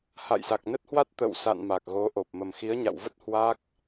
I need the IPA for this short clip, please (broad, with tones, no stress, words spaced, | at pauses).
ha̰˧˨jsa˨˩k̚nə˦˥t̚hwa˦˥t̚ t̪ə̰˧˨wsa̰˧˨n ma˨˩k̚ɣo˨˦ʔo˨˩p̚ mə˨˩mxi˨˦ə̯ɲa̰˧˨wvə˦˥t̚ hwa˦˥k̚